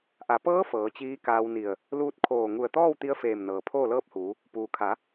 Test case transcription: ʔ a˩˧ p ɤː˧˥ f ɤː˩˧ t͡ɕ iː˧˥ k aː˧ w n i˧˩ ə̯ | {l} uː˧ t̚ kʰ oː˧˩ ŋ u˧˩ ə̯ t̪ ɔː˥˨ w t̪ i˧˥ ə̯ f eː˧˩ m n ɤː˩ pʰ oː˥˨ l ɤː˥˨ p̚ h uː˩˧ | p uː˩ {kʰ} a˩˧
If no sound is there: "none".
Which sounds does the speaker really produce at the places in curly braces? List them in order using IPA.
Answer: l, kʰ

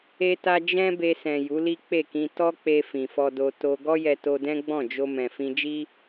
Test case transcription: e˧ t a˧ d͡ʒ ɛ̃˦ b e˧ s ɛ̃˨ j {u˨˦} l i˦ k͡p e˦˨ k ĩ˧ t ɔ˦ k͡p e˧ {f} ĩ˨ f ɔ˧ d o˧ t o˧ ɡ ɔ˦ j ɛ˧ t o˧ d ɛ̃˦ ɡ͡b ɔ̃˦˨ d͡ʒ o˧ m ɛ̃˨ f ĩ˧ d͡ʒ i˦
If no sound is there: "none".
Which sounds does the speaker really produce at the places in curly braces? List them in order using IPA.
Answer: u˨˦, f

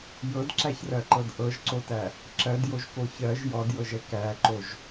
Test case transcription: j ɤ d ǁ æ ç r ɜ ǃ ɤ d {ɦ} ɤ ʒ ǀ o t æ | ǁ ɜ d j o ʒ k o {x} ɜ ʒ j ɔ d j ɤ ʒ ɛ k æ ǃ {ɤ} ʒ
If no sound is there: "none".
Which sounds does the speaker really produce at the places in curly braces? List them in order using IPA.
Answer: ʔ, ç, o

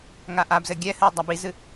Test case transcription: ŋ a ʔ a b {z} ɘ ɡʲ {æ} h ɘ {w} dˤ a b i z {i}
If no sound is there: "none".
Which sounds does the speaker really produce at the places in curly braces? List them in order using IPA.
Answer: z, ɛ, w, ɨ

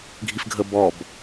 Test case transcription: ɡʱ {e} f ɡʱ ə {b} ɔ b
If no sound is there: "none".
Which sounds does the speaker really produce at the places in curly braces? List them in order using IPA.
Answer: i, b

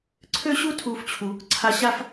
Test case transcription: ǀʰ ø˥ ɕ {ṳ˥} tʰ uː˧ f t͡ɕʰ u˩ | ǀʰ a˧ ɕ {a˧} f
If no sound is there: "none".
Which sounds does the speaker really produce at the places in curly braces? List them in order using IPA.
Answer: u˥, a˥

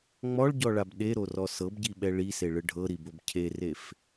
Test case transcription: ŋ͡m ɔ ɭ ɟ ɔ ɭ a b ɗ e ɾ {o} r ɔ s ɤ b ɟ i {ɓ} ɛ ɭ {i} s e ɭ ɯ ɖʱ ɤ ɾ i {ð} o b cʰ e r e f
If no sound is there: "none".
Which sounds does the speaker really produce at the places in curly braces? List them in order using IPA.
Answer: o, ɓ, i, b

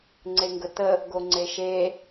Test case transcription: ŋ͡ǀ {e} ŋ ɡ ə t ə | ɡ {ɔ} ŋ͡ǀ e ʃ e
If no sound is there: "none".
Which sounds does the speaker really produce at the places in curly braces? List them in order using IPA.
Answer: e, o

